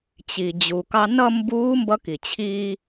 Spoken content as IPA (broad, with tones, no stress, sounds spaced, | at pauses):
t͡ɕ i˩ d͡ʑ u˩ k ɑ˧ n ʌ˥˧ m b uː˧˥ m b ʌ˧˥ k i˩ t͡ɕʰ iː˧